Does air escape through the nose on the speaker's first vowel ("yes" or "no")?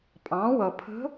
yes